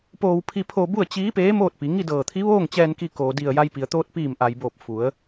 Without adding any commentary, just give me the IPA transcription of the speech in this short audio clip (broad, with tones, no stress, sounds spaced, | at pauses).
p oː˧ w pʰ i˧ pʰ oː˧ b u˥˨ ə̯ t͡ɕ iː˧˥ p eː˧˥ m oː˥˨ t̚ p i˩˧ ŋ i˥˨ d ɤː˧˩ t̪ʰ i˧˥ ʋ oː˥˨ ŋ t͡ɕ ɛː˧ n k i˧ k oː˩ d i˧˩ ə̯ j a˧ j p i˩ ə̯ t̪ oː˧ t̚ p iː˧˩ m ʔ a˩ j b oː˧˩ p̚ f u˩˧ ə̯